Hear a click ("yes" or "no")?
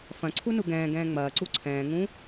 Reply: yes